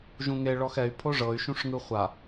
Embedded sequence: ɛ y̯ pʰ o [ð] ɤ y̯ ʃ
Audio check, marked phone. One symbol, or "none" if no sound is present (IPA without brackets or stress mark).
ʐ